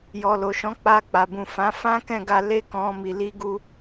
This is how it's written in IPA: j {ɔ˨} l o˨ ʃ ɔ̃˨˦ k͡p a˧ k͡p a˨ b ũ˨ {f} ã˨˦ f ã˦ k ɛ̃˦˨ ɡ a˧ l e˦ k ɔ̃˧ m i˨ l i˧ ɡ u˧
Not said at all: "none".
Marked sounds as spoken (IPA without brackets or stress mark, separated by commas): ɔ˨, f